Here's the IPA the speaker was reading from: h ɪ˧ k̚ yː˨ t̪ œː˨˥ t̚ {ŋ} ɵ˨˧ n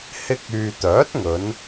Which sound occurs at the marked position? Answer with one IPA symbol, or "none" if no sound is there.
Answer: ŋ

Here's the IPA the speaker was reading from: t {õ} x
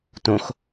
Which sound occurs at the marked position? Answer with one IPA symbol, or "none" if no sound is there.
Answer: õ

